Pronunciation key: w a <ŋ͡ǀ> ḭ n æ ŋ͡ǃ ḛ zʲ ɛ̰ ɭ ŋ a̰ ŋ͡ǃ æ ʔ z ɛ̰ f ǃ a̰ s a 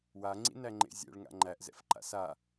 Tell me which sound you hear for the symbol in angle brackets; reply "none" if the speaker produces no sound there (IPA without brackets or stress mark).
ŋ͡ǀ